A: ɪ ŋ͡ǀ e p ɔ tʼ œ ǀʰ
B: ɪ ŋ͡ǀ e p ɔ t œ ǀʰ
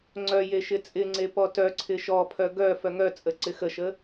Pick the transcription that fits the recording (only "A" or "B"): B